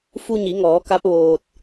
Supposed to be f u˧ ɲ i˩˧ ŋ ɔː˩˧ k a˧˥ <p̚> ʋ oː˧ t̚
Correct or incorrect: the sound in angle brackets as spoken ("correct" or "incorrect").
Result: correct